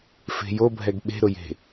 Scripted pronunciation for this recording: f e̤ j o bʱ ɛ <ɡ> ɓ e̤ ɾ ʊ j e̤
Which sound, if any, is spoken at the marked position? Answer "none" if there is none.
ɡ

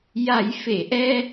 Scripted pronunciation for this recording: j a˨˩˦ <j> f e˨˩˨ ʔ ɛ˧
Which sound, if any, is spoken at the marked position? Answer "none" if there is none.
j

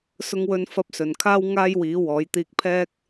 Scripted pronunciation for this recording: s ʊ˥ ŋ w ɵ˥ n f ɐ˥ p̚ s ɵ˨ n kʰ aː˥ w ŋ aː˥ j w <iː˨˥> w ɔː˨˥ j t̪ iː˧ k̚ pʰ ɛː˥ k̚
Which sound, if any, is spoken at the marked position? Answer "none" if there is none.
iː˨˥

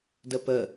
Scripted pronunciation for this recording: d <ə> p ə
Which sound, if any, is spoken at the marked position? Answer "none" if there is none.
ə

